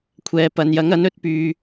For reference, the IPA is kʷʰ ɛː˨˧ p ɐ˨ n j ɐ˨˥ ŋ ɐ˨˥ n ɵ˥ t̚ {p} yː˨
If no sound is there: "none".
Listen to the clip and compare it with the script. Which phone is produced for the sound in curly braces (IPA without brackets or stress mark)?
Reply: p